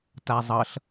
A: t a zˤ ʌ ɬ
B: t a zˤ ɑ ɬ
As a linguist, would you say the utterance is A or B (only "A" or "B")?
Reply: A